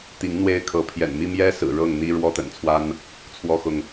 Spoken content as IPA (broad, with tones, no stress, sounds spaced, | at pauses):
t̪ i˨˦ ŋ n̪ w e˦ ɪ̯ kʰ ɤ˨˦ pʰ j ɛ̰˨˩ n m i˦ m j ɛ˦ s ɹ̩˨˩ ɻ ɤ˥˨ ŋ n̪ i˦ ɻ w ɔ˦ t̪ ə̰˨˩ n t͡sʰ w a˦ n | t͡sʰ w ɔ˦ x ʊ˨ ŋ